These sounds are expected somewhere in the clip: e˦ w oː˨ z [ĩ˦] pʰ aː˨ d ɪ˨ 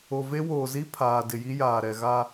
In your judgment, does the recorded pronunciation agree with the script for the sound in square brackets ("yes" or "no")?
no